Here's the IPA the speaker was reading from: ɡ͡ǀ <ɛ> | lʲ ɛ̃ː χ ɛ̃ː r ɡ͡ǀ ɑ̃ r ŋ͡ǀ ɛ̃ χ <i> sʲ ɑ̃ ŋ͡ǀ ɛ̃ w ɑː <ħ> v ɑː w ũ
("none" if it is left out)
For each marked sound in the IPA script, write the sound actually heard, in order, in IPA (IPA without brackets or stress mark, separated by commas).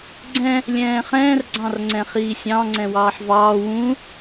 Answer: ɛ̃, iː, ħ